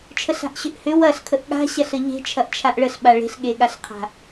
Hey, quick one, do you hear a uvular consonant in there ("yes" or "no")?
yes